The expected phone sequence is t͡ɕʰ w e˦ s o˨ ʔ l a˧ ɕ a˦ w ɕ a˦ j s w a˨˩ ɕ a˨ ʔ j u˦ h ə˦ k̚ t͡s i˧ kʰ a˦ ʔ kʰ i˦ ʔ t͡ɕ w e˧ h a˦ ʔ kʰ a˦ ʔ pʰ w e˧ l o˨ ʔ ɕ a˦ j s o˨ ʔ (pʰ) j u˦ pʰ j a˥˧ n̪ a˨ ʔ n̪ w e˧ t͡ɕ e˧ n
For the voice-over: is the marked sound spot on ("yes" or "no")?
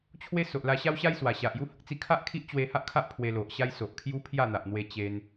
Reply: no